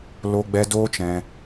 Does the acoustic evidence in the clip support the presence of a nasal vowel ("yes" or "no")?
yes